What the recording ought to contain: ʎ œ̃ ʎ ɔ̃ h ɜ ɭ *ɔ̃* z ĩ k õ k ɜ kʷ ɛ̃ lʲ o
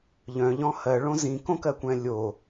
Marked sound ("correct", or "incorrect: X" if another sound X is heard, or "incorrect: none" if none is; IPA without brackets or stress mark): incorrect: õ